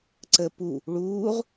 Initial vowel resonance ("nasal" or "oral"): oral